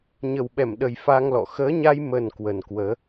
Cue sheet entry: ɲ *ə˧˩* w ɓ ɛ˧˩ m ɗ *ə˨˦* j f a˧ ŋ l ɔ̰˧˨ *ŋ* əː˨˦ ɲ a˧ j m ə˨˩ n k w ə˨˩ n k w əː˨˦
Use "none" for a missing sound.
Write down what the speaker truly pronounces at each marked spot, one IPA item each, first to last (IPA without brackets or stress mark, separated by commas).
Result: ə˨˩, ə˨˩, x